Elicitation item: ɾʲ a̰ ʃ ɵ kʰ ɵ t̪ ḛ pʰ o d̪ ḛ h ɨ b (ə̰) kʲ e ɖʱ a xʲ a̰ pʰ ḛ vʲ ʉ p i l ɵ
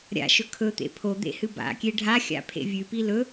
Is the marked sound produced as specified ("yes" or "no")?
no